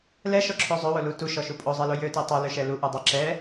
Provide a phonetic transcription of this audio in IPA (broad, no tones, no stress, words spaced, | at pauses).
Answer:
lɛʃɔǁʰo zˤøwolu tuʃɔʃu pʼozˤɛlo jøtɛ tˤoløʃɛ luʔudˤɛ ǁɛ